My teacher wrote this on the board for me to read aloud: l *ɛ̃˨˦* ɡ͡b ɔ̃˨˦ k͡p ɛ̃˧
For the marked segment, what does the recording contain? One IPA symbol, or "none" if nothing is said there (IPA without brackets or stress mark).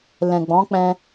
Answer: ɛ̃˨